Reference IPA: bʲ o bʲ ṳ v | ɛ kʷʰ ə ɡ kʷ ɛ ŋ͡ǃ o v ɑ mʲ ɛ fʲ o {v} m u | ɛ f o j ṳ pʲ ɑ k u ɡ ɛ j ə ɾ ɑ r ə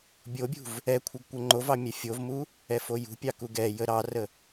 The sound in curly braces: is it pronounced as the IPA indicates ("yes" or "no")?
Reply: yes